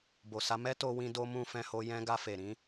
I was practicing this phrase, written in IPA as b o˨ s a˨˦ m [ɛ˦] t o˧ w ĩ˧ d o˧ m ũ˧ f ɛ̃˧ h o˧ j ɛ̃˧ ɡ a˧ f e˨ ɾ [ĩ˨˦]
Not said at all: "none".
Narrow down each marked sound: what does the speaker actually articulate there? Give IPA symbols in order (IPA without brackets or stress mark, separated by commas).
ɛ˦, ĩ˨˦